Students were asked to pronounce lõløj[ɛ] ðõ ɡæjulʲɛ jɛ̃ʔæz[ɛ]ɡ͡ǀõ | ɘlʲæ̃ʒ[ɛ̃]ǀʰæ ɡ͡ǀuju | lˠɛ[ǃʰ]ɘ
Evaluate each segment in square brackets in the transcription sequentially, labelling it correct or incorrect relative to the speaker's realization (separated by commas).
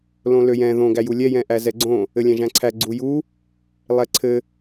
incorrect, correct, incorrect, incorrect